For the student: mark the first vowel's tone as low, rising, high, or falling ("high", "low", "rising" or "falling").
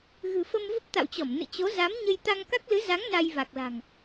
low